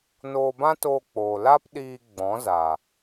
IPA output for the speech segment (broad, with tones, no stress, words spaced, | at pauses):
noː˧bã˦toː˧k͡poː˨ la˦pɗiː˧ ɡ͡bɔ̃˨˦za˨